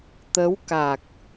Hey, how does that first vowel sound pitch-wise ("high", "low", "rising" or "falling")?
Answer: rising